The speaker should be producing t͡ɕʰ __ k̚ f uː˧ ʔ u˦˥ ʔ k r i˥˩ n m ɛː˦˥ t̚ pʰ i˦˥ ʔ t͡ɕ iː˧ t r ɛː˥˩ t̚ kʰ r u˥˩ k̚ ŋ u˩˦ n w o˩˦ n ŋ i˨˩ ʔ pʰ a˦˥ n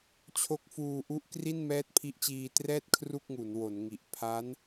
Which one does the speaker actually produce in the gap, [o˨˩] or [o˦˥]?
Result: o˦˥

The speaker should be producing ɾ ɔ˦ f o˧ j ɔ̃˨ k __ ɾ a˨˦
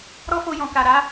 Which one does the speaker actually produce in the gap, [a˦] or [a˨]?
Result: a˨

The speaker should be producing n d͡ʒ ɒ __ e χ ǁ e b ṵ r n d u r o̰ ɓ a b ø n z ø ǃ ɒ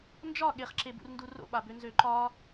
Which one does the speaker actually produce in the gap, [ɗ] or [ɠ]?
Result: ɠ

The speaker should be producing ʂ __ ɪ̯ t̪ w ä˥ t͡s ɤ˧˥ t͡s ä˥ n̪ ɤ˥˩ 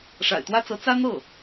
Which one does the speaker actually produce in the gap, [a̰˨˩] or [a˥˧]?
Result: a̰˨˩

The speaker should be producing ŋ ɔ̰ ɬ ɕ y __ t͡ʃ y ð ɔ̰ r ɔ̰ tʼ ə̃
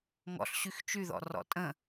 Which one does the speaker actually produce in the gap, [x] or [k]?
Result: x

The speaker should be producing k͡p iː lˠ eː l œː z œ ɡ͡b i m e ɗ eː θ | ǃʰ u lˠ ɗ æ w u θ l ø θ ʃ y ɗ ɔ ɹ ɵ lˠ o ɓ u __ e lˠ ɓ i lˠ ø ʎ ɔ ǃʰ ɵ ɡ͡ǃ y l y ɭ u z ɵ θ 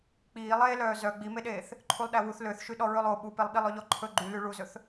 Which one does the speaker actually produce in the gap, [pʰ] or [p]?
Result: p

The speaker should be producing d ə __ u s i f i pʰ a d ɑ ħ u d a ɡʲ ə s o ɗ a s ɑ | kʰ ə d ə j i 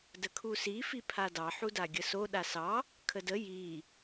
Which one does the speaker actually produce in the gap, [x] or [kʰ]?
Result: kʰ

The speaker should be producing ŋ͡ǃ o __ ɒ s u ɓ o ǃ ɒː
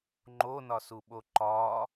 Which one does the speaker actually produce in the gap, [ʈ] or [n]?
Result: n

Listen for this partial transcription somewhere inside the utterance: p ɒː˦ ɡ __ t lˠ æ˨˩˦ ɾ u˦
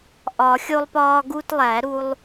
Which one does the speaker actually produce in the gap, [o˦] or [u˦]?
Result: u˦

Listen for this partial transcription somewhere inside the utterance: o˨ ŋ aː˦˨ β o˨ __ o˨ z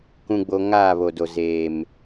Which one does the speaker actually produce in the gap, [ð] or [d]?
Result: d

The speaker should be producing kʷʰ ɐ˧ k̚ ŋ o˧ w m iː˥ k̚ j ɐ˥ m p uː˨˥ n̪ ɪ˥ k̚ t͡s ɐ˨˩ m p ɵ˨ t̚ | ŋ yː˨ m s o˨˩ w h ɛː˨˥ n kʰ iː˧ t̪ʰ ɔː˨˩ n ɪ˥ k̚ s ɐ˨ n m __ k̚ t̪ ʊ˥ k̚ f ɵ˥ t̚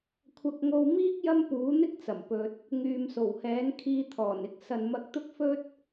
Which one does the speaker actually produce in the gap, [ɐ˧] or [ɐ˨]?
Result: ɐ˧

